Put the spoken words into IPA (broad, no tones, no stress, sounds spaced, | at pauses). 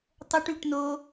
tˤ ə ʈ y ʈ n o